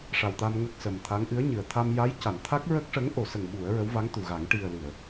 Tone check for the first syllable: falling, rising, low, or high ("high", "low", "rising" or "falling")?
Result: low